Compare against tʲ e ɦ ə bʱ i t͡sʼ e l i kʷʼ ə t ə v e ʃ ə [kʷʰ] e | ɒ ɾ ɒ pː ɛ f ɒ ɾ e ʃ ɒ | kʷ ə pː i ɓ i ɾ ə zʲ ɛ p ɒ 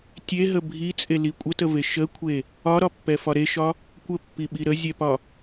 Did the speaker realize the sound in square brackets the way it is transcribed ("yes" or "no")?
yes